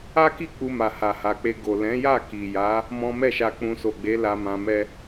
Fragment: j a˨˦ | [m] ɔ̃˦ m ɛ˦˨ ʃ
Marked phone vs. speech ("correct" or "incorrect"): correct